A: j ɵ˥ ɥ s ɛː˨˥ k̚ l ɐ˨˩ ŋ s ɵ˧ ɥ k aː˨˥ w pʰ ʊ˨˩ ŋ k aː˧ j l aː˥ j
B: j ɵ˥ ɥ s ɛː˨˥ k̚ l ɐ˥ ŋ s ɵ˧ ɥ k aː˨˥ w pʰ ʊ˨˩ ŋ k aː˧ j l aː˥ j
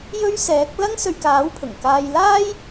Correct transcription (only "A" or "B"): B